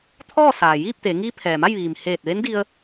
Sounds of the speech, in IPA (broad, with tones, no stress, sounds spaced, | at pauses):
t̪ʰ ɔː˥˨ s aː˩ j iː˥˨ p̚ t̪ eː˩˧ ŋ iː˧˥ pʰ ɛː˩ m a˥˨ j ʋ iː˩ m h eː˧˩ t̚ ʋ e˧˥ n d i˧ ə̯